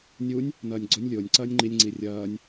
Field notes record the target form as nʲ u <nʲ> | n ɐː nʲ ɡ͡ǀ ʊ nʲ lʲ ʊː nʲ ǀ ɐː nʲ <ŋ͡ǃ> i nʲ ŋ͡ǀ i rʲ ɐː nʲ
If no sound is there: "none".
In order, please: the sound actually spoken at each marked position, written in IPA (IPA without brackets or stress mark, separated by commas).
nʲ, ŋ͡ǃ